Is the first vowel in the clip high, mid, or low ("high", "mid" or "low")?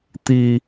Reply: high